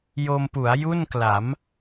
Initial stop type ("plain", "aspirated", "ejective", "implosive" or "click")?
plain